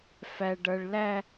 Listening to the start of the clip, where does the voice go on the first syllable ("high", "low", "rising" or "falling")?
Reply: low